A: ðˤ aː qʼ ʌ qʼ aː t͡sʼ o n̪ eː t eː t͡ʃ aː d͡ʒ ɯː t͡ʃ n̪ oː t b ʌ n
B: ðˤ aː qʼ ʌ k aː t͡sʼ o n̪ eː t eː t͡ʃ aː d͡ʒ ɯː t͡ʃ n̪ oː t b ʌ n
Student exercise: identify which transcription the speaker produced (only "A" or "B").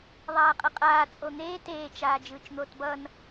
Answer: A